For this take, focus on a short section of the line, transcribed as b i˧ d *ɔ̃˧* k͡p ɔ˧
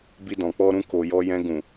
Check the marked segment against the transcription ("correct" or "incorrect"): incorrect